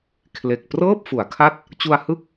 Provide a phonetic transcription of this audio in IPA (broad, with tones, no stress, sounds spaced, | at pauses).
kʰ l e˨˩ k̚ p r ɤː˥˩ p̚ f u˩˦ a̯ kʰ a˦˥ t̚ | t͡ɕ u˧ a̯ h ɯ˦˥ k̚